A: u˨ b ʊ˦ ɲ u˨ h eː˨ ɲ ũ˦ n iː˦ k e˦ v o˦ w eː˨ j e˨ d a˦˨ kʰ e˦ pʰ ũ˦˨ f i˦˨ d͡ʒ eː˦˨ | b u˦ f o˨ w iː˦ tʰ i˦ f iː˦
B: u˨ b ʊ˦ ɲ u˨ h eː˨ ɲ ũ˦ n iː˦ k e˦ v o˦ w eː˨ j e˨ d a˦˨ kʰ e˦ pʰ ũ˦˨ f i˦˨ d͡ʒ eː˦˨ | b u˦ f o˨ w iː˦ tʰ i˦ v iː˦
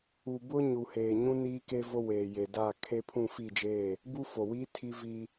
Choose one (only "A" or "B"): B